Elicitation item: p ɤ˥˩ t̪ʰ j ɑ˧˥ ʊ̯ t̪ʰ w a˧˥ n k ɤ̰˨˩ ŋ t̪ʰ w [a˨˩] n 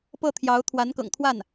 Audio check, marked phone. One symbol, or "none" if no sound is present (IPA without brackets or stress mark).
a˥˩